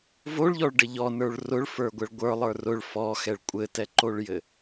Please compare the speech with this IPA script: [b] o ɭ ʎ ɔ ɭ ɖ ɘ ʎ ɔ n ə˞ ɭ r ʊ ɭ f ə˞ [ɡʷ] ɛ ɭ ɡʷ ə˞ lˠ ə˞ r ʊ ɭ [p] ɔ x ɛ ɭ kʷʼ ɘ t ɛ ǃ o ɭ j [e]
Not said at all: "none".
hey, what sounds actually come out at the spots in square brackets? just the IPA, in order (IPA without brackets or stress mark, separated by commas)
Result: v, ɡʷ, f, ɘ